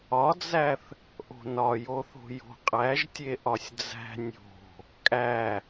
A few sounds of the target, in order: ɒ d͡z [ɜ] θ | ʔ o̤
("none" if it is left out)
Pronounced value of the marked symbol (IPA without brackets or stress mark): æ